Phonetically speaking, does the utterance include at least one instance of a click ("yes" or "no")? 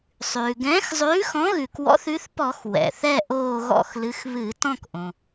no